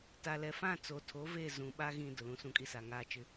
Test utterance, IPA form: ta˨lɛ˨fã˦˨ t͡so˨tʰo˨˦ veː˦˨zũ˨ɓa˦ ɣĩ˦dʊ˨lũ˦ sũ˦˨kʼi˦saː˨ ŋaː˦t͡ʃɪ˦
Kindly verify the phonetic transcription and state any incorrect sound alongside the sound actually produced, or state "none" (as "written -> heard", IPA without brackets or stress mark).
none